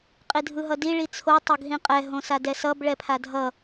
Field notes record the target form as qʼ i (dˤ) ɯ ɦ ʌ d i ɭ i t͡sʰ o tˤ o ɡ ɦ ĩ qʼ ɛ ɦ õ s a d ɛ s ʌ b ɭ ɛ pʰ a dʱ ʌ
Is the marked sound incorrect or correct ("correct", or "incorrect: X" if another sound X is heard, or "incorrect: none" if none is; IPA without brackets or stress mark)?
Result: incorrect: dʱ